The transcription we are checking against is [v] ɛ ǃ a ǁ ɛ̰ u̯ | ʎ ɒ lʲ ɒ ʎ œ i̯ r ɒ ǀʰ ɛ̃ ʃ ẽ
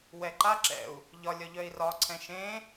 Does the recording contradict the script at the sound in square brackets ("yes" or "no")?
yes